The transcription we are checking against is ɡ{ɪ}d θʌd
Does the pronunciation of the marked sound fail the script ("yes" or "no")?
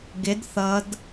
no